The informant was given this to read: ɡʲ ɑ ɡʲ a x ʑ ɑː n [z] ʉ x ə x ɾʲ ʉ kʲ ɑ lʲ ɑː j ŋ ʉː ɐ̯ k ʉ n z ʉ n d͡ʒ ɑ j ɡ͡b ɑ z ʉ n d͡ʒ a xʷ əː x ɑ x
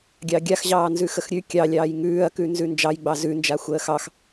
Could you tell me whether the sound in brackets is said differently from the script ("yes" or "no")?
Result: no